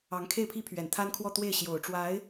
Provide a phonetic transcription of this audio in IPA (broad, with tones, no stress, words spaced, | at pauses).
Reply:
ɑ˧˥ŋkʰe˥˩ɪ̯pʰi˥pʰɥɛ˨˩n t̪ʰa˥nkʰwɔ˥˧t̪we˥˩ɪ̯ ɕjo˨˩ʊ̯ʈ͡ʂwa˧˥ɪ̯